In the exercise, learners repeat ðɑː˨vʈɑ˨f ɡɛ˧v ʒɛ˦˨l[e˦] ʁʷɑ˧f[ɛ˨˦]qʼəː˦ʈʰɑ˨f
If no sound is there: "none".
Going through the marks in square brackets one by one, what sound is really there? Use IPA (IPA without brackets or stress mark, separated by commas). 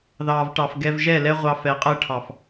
ɛ˦, ɛ˨˦